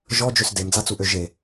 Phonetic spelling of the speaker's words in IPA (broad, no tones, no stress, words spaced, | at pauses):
ʒɔd͡ʒøs demd͡zat͡suʔø ʒe